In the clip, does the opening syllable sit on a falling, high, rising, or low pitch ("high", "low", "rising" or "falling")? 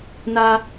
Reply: high